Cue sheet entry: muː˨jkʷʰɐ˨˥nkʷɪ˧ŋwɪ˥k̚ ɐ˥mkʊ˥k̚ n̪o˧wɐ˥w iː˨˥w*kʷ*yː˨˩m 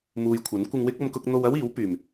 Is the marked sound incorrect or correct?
incorrect